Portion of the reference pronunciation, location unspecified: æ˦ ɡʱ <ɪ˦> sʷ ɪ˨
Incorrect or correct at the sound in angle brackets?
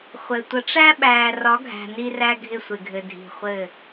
correct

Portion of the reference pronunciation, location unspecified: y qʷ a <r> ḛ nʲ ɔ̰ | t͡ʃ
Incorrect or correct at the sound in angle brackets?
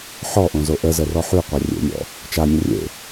incorrect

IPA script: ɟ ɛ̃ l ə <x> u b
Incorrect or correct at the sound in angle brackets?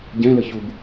incorrect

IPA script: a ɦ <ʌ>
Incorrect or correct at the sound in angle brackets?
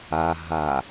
incorrect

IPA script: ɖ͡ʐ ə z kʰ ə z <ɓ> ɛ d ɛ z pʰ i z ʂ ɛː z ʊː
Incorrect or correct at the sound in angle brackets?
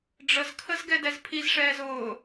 incorrect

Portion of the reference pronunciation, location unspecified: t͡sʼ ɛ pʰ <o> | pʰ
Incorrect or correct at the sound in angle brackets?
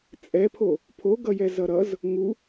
correct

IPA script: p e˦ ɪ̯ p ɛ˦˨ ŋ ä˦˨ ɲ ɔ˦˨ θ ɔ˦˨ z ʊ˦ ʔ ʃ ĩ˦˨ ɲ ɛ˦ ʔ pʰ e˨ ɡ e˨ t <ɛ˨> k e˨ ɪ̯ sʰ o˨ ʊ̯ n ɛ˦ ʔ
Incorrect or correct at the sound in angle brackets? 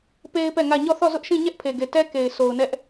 incorrect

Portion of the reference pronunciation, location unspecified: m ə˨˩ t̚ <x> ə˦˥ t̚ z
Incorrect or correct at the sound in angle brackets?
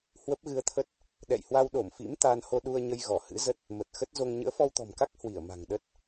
correct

